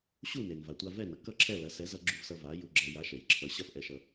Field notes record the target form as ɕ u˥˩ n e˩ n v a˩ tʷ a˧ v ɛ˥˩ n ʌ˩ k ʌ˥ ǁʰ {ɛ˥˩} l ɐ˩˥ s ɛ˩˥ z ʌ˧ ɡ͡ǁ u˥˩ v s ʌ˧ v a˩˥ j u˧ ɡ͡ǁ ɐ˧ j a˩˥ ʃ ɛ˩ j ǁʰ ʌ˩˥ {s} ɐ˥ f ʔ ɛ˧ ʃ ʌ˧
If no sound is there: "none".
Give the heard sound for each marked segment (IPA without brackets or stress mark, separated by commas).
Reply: ɛ˥˩, ɕ